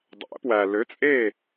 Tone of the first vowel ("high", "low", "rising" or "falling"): rising